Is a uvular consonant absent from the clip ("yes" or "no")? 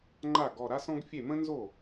yes